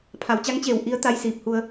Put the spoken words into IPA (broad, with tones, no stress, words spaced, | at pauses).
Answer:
pʰa˩˧wt͡ɕa˧˥ŋt͡ɕeː˧˩w ʔi˧˥ə̯ t̪a˧j siː˧˩p̚hu˧ə̯